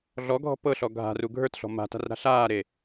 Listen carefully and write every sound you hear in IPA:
ɮɔɡʱɔ̤ pɤɬɔ ɡʱa̤ru ɡʱə˞tɬɔ̤ ma̤ta̤rɾa̤ ɬaːɾe

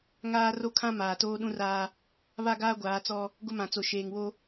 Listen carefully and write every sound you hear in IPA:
ŋaː˦ ro˦kʰã˦ maː˨toː˦ ɗũ˦raː˦ | βa˦ɡaː˦ɡʷaː˨˦t͡sɔ˦ | ɡʊ˦mã˨t͡so˨ ʃeː˨ŋwo˦

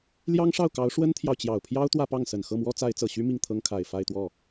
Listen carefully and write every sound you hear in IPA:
ljɑ˥ŋʂɑ˥˩ʊ̯kɑ˧˥ʊ̯ ʂwə˥nt̪ʰjɑ˨ʊ̯t͡ɕjɑ˨˩ʊ̯pʰjɑ˥ʊ̯ t̪wä˥˧pɑ˥˩ŋsə˨˩n xɤ˥˩mwɔ˥ t͡sa˧˥ɪ̯t͡sɤ˨˩ɕy˥ mi˥˩ŋt̪ʰɤ˥ŋkʰa˨˩ɪ̯ fa˥˧ɪ̯t̪wɔ˥˩

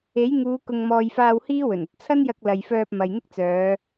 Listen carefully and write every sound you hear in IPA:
e˨˥j ŋuː˨˧ kʊ˨ŋmɔː˨jfaː˧w hiː˥wɵ˨˩nɵ˧t̚ t͡sʰɐ˥njɐ˧k̚ lɐ˨jfœː˧p̚ mɐ˨jn̪ɪ˥k̚t͡sœː˨˧

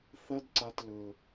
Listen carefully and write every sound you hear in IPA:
θɐ˥dǀa˧tlɵ˩

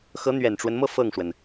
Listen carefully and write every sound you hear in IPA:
xɤ˧˥n̪ɥɛ˨˩nʈ͡ʂwə˦nmɤ˥˧ fɤ˥˩ŋʂwə˩n

